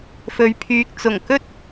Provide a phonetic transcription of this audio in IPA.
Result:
f ɵ˨˧ ɥ pʰ yː˨ k̚ t͡s ʊ˨˩ ŋ k ɵ˥ t̚

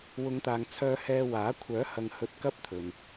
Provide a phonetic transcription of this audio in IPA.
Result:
w ʊ˨˧ ŋ t̪ aː˨ ŋ t͡sʰ œː˧ h ɛː˧ w aː˨˥ kʷʰ œː˨˥ h ɐ˨ ŋ h ɵ˧ t̚ k ɐ˥ p̚ t̪ʰ ɵ˨ n

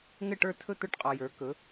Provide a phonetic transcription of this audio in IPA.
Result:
ŋ ɘ˥˨ ʈ ə˞˥˨ tʰ ɵ˥˨ t̪ ə˞˥˨ ʈ qʼ ɔ˨ j ə˞˨˥ k ɵ˨˥

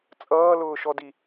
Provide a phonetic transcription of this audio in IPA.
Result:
t͡sʼ ʌː l ʊː ʃ ɔ d i

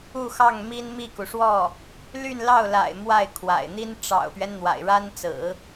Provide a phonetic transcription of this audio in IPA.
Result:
u˥˧ x ɑ˥˩ ŋ m i˥ n m i˥˩ k u˩ ʂ w ɔ˥˩ | l y˥˧ n l ɑ˥˩ ʊ̯ l a̰˨˩ ɪ̯ m w a˥˩ ɪ̯ kʰ w a̰˨˩ ɪ̯ n̪ i˥ n ʈ͡ʂ ɑ̰˨˩ ʊ̯ p ɥ ɛ˦ n n̪ w a̰˨˩ ɪ̯ ɻ a˥ n t͡s ɹ̩˨˩˦

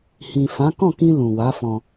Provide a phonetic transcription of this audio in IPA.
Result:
h ĩ˨ f ã˨˦ k ɔ̃˦˨ k ĩ˧ l ũ˨ w a˨˦ f ɔ̃˧

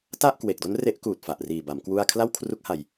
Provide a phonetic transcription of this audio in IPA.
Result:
t a˥˩ ʔ k w e˨˩ k̚ d o˦˥ n r e˦˥ ʔ k uː˨˩ t̚ f a˨˩ ʔ r iː˨˩ b a˩˦ m k w u˥˩ a̯ kʰ l a˥˩ w kʰ r u˦˥ k̚ h a˧ j

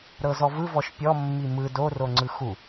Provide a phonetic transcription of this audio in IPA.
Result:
ɾ ɤ z ɔ v ɯ v ɔ ʃ pʲ ɔ mː i m ɯ d o r o ŋ͡ǀ ɯ x u

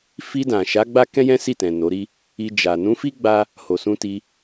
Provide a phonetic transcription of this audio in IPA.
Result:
f i˧ d ã˨ ʃ a˨˦ ɡ͡b a˦ k ɛ̃˦ j ɛ̃˦ s i˦˨ t ɛ̃˨ n o˨˦ ɾ i˦ | i˧ d͡ʒ a˨ n ũ˨˦ f i˦ ɡ͡b a˦ | h o˨ s ũ˧ t i˧

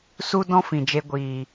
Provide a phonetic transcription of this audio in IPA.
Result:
s u˦ d ɔ̃˦ f ĩ˨ d͡ʒ e˧ ɡʷ iː˨

